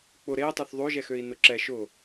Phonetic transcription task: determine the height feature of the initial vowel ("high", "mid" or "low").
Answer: high